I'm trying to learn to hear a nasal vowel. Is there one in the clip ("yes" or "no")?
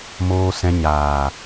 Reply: yes